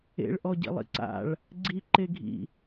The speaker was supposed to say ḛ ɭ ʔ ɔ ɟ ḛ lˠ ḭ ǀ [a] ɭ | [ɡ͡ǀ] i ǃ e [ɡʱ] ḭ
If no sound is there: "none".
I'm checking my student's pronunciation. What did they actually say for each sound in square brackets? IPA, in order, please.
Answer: a̰, ɡ͡ǀ, ɡʱ

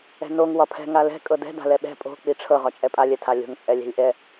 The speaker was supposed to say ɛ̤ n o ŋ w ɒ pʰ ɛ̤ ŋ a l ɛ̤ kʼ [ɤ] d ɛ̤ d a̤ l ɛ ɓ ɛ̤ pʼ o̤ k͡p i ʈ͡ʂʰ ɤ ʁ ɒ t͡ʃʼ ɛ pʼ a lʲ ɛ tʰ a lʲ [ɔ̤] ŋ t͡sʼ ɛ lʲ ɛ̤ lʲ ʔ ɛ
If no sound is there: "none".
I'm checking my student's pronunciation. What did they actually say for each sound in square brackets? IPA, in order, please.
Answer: ɤ, o̤

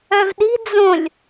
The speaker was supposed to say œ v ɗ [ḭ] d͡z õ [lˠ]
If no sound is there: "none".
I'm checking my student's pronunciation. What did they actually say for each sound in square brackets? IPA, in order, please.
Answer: i̤, lʲ

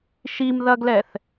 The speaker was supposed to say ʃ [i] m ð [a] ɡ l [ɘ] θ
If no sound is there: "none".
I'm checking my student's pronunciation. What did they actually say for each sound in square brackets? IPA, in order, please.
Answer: i, ɐ, ɛ

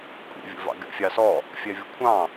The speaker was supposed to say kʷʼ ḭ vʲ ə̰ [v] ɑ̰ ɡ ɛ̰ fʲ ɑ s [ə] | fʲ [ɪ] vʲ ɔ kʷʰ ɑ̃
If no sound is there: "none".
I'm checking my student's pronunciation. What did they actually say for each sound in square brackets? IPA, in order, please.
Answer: v, ɔ, ɛ

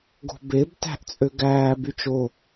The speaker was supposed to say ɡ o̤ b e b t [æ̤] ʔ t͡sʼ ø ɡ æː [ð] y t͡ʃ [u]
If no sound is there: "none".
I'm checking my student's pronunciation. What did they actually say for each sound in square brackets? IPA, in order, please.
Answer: æ̤, b, o

